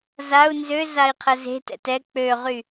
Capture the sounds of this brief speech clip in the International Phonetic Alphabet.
z a u̯ n z ø z a i̯ qʰ ə z e̤ t ɛ̰ t ɛ k͡p ø ʁ y

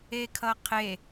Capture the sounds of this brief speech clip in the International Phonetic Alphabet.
e kʰ ʌ qʰ e

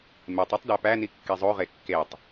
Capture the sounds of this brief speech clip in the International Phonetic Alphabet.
m e tˤ o tˤ d æ p æ n i kː i zˤ o ʁ e kː e tˤ

